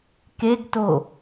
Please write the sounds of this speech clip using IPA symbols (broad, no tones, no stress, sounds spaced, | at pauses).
k e ɡ t o